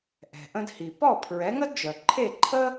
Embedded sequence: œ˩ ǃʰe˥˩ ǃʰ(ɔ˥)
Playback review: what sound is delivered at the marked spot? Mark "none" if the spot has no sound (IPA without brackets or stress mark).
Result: ə˥